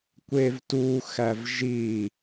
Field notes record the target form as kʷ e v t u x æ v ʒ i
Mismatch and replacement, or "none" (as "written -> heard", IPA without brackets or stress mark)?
none